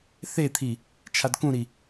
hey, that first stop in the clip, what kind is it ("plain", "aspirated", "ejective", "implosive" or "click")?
aspirated